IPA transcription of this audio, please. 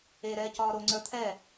eɾɛːcɒː ɾoŋ͡ǀə˞ t̪ʰɛ

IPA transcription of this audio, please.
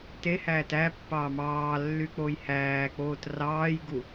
te hæːtæpːɑː mɑː lːyk͡pojhæːk͡poːt rɑːjɡu

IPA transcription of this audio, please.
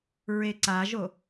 ɹeǀaʒo

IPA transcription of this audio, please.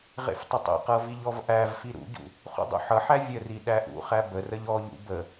ʁḛftˤʌtˤḛqɤ viʎɔvʔævfi ɾṵɟṵ | χṵdˤṵħʌħæ vʲəri ɗæʔṵχæ bərəʎ ɔʎṵ bə

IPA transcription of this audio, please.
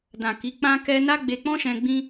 dã˨ ki˨˦ k͡pã˦kɛ˦ na˦ɡ͡be˧k͡pɔ̃˦ʃɛ̃˧ ɡ͡bĩ˦

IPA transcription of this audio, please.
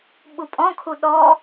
ɓupʼɔ̃kʰu ɗɔ

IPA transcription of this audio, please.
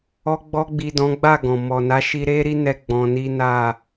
ɔ˧ɡ͡bɔ˧ɡ͡bi˨ dɔ̃˨˦ɡ͡ba˦˨ ɡɔ̃˨ mɔ˨na˨˦ʃi˧ ɾe˦ ɾi˦nɛ˧ ɡ͡bɔ̃˧ni˦ na˦˨

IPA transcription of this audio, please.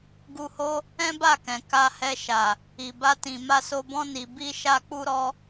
ɡu˧ho˦ | ɛ̃˦ba˦˨kɛ̃˨ ka˧hɛ˧ʃa˨ | i˨ba˧tĩ˨ ma˧so˧bɔ̃˦ ni˧ bi˦ ʃa˧k͡pu˧ɾɔ˧

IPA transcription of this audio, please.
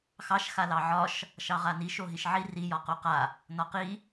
xɑʃ xalɑʕɒʃ | ʃɑʁaniʃ oɦiʃʕi ri jɒqoqa | nɒqi

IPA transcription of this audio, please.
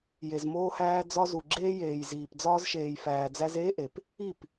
je˨zmoː˧hæː˧ d͡zɒ˧zu˨ɡ͡ǁeː˧jeː˨j ziː˨p d͡zɒː˧zʃeː˨j fæː˨d͡zæ˧z eː˦ʔe˨p | i˦˨p

